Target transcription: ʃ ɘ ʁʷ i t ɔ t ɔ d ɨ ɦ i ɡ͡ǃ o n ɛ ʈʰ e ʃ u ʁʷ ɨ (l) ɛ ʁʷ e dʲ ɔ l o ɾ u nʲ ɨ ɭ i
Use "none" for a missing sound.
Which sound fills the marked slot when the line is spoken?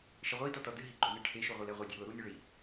l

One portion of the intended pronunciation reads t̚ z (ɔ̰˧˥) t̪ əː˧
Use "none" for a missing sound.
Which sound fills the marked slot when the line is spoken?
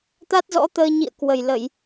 ɔ̰˧˥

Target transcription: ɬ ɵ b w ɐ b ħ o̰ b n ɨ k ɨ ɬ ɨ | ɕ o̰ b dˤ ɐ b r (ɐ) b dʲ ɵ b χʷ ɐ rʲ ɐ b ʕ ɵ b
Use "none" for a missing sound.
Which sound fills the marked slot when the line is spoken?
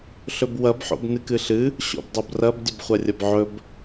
ɐ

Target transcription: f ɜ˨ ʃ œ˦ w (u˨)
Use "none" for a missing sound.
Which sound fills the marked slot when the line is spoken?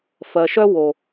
o˨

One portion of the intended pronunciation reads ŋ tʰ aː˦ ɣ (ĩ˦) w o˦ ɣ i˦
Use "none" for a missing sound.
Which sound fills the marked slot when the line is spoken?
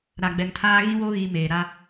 ĩ˦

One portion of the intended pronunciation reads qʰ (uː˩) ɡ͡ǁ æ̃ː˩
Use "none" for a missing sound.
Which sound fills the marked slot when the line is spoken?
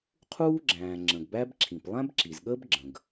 uː˥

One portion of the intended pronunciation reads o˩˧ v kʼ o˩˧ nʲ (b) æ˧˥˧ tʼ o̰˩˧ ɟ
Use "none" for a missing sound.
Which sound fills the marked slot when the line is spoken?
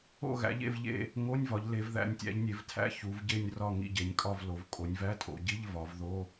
v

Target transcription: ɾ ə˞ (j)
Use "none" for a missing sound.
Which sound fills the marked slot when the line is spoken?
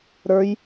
j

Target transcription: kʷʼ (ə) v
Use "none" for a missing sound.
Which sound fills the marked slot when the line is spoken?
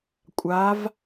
a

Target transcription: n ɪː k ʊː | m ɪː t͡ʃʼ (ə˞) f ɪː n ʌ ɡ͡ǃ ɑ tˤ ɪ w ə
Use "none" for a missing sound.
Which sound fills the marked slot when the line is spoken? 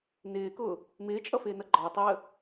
ʌ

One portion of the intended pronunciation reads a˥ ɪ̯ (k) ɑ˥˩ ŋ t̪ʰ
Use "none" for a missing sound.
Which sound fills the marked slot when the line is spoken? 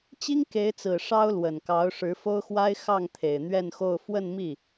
x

